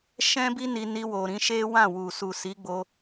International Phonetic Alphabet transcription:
ʃ ɛ̃˦ b i˦ n i˧ n i˧ w o˨ ɾ ĩ˧ ʃ e˦ w ã˦˨ w u˨ s u˨ s i˨˦ ɡ͡b o˧

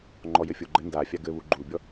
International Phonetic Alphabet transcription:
ŋ͡ǃ ɔ j ɘ fʲ o ɡ͡ǃ ɘ n d a fʲ a ɡ ɘ β u ɡ͡ǃ u bʲ ɔ

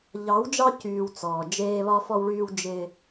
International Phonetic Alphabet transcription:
ʎ ɑ˨˦ w d͡ʒ ɑ˦ c yː˨ w t͡s ɔː˨ d͡ʒ eː˦ β ɒ˦ f ɔ˦ w ɭ yː˦ w d͡ʒ ɪ˦

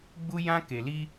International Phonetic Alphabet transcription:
ɡ͡b u˧ j ã˧ k e˨ l i˧

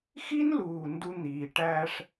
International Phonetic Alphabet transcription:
x i˦ n l uː˨ n d u˧ n̪ iː˨ ʈ æː˧ ʂ

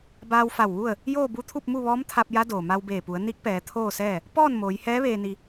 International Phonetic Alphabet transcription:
b aː˧ w f a˧˩ w ʋ u˥˨ ə̯ | j oː˥˨ b u˧˥ t̪ʰ u˥˨ p̚ m u˥˨ ʋ ɔː˧˥ m t̪ʰ a˧ p̚ j a˧˥ d oː˩ m a˧ w b eː˧˩ p u˩˧ ə̯ n i˧˥ k̚ p ɛː˩˧ t̪ʰ oː˥˨ s ɛː˥˨ | p ɔː˥˨ n m oː˩˧ j h ɛː˧˥ ʋ eː˧ n i˧

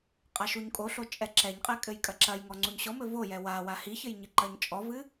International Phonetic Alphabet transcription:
qʼ a ʃ u ɲ kʼ o ɬ o t͡ʃʼ ɛ ǁ ɛ ɲ qʼ ɛ kʼ ɘ j kʼ ɐ ǁ ɐ j ŋ ɔ ŋ͡ǀ u ɲ ɕ ɔ m ɘ v o j ɛ w a w a h i ç ɘ j ɲ ɨ ǃ ɐ ɲ t͡ʃʼ ɔ v ɨ

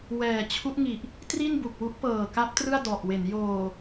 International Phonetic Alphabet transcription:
w ɛː˨˩ t͡ɕʰ u˦˥ ʔ ŋ i˨˩ ʔ | t r i˥˩ n b u˨˩ k̚ w u˦˥ ʔ p ɤː˨˩ k a˦˥ p̚ t r ɯ˥˩ a̯ d ɔ˨˩ ʔ w e˩˦ n j oː˨˩

